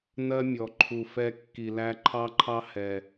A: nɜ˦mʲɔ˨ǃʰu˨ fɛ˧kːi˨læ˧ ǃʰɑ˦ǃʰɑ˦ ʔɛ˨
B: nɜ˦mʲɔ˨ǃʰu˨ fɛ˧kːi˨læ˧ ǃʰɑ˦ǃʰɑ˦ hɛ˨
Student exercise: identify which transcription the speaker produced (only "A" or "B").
B